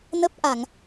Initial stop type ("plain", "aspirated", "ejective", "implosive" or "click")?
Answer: plain